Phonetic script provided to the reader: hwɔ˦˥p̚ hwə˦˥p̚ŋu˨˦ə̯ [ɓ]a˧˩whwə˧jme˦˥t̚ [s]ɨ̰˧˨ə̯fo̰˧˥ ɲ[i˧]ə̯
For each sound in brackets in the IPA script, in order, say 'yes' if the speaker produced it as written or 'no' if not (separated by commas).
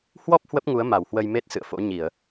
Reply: no, yes, no